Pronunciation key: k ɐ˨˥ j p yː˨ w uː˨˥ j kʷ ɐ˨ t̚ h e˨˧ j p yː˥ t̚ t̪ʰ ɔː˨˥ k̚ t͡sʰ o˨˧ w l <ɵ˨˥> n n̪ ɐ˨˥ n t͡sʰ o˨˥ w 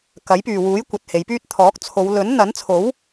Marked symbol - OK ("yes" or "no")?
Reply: yes